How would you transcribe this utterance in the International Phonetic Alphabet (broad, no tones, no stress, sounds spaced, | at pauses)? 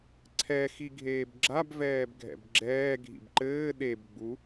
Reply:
ǀʰ ɛ x i ɡʱ eː b ɡ͡ǁ a b v ɛː b ɡʱ ɛ̰ b ɡ͡ǁ ɛː ɡʱ ḭ b ǃ ɘː ɗ e b ɡ͡b u